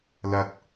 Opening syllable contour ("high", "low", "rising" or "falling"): high